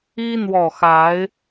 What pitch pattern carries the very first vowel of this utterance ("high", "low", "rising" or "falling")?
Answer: high